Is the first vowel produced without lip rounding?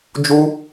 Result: no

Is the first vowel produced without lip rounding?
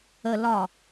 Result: yes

